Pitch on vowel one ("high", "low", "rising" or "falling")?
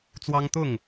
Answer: high